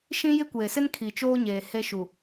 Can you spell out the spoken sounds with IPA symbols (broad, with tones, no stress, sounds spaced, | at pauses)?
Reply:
ʃ ĩ˦ j ɪ˦ kʷ eː˨ s ɪ˦ n kʰ i˨ t͡ʃ oː˦ ɲ eː˨ h e˦ ʃ u˨